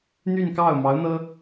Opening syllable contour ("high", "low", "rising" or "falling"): falling